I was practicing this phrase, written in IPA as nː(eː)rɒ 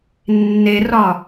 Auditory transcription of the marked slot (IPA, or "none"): e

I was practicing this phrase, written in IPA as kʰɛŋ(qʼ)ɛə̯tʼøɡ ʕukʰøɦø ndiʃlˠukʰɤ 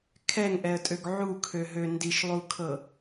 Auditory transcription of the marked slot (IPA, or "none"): ʔ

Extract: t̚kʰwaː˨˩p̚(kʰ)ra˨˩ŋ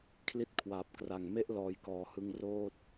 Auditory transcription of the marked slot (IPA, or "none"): k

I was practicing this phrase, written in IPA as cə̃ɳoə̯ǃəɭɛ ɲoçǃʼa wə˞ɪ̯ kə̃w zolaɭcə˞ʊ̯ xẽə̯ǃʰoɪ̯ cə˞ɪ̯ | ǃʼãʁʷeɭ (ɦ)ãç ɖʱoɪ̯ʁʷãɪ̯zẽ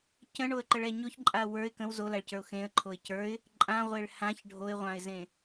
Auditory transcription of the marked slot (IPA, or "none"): h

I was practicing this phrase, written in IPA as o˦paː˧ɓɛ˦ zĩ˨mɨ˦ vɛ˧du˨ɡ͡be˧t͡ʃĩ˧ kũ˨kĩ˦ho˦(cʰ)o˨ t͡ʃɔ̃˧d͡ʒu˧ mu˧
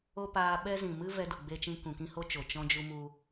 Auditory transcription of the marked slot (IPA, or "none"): t͡ʃ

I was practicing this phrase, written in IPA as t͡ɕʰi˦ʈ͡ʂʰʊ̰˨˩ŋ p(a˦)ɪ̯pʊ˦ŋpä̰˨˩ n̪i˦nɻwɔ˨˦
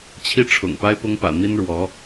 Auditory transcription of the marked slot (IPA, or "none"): a˦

